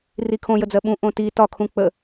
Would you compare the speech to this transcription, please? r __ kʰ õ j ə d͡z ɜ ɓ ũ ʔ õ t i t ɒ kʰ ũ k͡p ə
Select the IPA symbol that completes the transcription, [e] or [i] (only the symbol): i